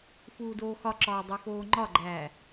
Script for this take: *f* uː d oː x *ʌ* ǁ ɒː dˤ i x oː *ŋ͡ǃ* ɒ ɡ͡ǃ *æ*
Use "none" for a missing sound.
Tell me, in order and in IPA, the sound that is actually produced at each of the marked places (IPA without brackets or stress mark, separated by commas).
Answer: f, ɒ, ŋ͡ǃ, æː